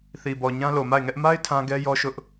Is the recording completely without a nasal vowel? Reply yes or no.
no